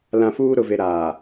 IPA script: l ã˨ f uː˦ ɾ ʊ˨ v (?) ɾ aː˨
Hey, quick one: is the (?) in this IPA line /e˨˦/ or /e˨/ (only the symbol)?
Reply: e˨